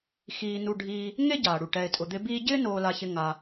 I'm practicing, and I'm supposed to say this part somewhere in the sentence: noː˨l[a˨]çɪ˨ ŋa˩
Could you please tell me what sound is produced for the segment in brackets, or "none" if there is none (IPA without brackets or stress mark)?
a˨